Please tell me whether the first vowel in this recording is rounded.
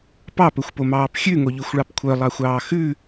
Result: no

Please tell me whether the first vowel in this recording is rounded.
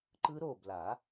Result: no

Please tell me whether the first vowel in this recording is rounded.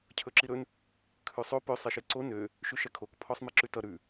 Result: yes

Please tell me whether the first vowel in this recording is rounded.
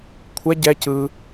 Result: no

